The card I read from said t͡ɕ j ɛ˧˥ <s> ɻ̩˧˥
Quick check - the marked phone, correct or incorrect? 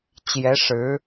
incorrect